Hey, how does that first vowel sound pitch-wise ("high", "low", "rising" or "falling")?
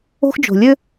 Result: high